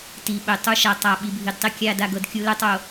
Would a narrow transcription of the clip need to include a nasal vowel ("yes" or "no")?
no